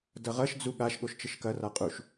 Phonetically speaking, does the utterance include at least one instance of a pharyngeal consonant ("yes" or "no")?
no